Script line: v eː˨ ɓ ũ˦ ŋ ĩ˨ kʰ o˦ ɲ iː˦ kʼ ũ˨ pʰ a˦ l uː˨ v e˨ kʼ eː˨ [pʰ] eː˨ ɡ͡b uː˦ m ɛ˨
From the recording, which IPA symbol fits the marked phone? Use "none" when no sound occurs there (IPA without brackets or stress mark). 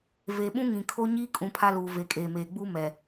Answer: m